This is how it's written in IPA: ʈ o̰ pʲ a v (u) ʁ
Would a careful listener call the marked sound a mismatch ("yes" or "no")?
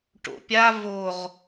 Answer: yes